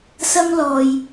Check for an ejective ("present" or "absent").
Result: absent